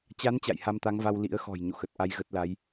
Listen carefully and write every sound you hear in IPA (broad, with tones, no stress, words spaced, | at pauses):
t͡ɕa˨˦n t͡ɕa̰˧˨jha˧mt̪a˨˦ŋva˧w lḭ˧˥ə̯xɔ̤˨˩j ɲo̰˧˨xə˨˩t̚ʔa˧j ɣə˦˥t̚la˨˦j